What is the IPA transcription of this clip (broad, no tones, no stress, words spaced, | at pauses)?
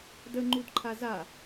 də ŋ͡ǃudǃʰaza